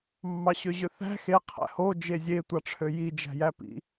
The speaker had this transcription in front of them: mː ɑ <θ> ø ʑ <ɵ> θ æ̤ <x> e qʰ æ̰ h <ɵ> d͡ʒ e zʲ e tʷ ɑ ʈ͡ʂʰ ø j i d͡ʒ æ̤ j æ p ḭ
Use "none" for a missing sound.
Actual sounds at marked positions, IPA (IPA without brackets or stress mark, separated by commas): ɕ, ø, x, o